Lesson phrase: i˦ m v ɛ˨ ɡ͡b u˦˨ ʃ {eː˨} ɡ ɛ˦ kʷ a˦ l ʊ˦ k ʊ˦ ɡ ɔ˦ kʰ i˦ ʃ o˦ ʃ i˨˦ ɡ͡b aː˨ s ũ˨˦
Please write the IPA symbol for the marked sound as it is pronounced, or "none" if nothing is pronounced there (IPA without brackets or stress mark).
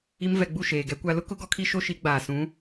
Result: eː˨